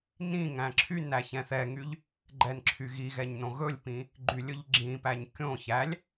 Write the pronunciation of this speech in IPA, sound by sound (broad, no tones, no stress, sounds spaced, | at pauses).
n ĩ ŋ æ̃ ǁʰ y n æ ç ɛ̃ θ ɛ ŋ y ʎ | ɡ͡ǃ ɛ n ǁʰ y ɣ i ɣ ɛ ɲ n õ ɣ ɵ lʲ p ĩ | ɡ͡ǃ y lʲ ɵ ʎ ɡ͡ǁ ĩ p æ ɲ kʲ õ ç æ lʲ